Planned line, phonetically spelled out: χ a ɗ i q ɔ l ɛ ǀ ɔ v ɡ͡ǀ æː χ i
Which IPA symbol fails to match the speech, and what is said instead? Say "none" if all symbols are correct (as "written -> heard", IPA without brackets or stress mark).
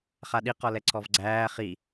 none